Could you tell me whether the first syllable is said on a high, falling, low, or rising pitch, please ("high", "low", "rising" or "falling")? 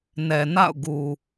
low